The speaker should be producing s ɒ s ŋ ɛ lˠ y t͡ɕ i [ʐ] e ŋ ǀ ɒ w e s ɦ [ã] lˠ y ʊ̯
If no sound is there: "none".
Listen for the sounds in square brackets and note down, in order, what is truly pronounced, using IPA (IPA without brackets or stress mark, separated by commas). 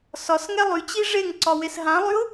ʐ, ã